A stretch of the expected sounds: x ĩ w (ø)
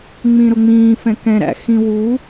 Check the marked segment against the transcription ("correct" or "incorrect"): incorrect